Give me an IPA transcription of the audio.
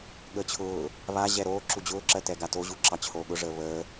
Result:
ɠəːt͡ɕʰʊː | βa ʑɛɾoː ǁud͡ʑʊː ǁɜtɛɡato ʑuǁɑt͡ɕʰoːɠʊ ʐəːβəː

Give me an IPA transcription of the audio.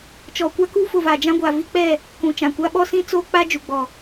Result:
t͡ʃɔ˨kʷa˦ku˦ fʊ˨vaː˨d͡ʒã˦ɡʷa˨ vi˦k͡pɛ˦˨ | kũ˨t͡ʃã˨kʷa˦ ɓɔ˦sĩ˦ t͡soː˦k͡pa˦ d͡ʒu˨ɡ͡bɔ˨

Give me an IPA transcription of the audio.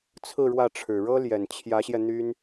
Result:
t͡sʰɹ̩˥˧ɻwä˥˩ʈ͡ʂʰɻ̩˨˩ ɻɤ˥ljɛ˨˩nt͡ɕʰjä˧˥ɕjɛ˧ n̪y˥n

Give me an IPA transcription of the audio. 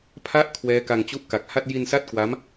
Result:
pʰa˦˥ʔ kʰwɛː˦˥ka˧ŋ t͡ɕu˦˥ʔka˨˩k̚ha˥˩t̚ ji˧n sa˥˩t̚kwa˦˥m

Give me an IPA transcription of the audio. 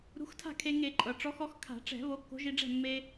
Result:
ɾṳ˨˥xtʰa̤˥˩kʰe˧ ŋe˧˩˧ǃʼɤ˩ ʈ͡ʂɔ˨˥xɔ˨˥x kʰa̤˧˩˧ʈ͡ʂɛ̤˧˩˧ βo˨˥kːo̤˨˥ʒi˧ɖ͡ʐɛ̤˥˩ mːe˧

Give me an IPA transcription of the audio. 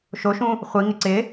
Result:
ʃoʃũ | χʷiŋɪ ǀɪ

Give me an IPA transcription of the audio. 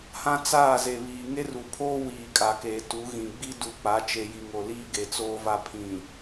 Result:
hã˦t͡saː˦˨ ze˨βiː˨ŋe˦ ru˨ pʰoː˦ wiː˨kʼa˨keː˨ tu˨˦ɣĩ˨ ɡ͡bi˦du˨ k͡pa˨˦t͡ʃe˨ji˨ ŋo˨liː˦ ɡe˨t͡soː˦va˦ pʰĩ˨

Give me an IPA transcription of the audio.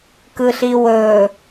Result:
kɯɬiwɵ

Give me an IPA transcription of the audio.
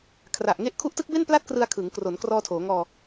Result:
kʰra˨˩ʔŋe˦˥ʔ kʰu˦˥ʔtɯ˦˥k̚be˥˩n pla˥˩t̚krɯ˧a̯kʰɯː˩˦ŋkro˩˦n krɔː˧tʰoː˩˦ŋɔː˧

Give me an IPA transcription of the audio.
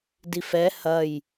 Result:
difɛ hɐj

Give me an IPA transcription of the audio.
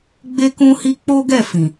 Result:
ɡ͡be˦kũ˦hi˦ k͡po˦ɡɛ˦˨fĩ˨

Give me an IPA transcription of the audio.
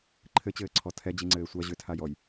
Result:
ǃʰɘt͡ɕɘːǀʰɔ tʰɛd͡ʑiŋ͡ǀɘː sʷa ʑʏtʰajɔj

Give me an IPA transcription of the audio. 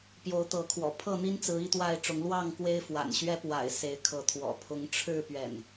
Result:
pjo˨˦ʊ̯t̪ɤ˨˦kʰwɔ̰˨˩ pʰɤ˥˨n̪i˦nt͡sɹ̩˨˦ i˥˨t̪wa˥˨ɪ̯ʈ͡ʂʊ˨˦ŋ lwɑ˥˨ŋ kwe˦ɪ̯fwa̰˨˩nɕɥɛ˦ pwa̰˨˩ɪ̯ se˨˦ɪ̯kʰɤ˨˦t̪ʰwɔ̰˨˩ pʰʊ˨˦ŋʈ͡ʂʰɻ̩˥˨pɥɛ̰˨˩n

